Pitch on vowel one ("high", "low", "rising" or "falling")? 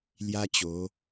high